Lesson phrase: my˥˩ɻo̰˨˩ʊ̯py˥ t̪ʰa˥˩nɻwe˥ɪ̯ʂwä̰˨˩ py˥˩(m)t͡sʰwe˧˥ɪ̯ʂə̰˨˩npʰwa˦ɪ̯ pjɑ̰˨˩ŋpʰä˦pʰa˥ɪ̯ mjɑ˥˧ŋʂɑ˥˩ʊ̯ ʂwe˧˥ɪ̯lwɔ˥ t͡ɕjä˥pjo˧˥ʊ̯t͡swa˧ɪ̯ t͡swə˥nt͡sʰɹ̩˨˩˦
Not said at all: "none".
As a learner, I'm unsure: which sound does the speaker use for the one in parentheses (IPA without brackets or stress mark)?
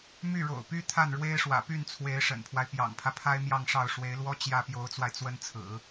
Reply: n